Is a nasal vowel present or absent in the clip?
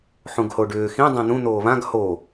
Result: present